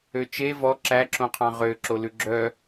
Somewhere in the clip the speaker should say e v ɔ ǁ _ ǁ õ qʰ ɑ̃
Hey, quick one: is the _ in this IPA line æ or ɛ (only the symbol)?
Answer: æ